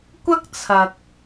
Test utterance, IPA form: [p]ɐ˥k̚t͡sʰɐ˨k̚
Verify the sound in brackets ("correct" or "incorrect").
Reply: incorrect